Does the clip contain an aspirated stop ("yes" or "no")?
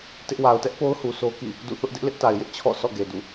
yes